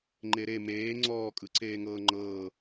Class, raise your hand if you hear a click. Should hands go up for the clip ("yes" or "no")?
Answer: yes